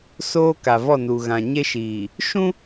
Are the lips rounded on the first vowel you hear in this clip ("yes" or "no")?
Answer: yes